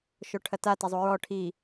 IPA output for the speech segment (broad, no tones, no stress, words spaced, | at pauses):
ʃoʈʰɐta tazˤuɹɔ ʈʰi